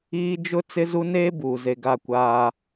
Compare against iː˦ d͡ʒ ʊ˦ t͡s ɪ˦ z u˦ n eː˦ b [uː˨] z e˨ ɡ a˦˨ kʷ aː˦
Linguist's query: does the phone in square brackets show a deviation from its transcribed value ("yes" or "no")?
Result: no